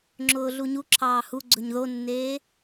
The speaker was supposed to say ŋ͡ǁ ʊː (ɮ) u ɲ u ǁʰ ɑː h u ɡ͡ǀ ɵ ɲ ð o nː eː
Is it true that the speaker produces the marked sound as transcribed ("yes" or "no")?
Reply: yes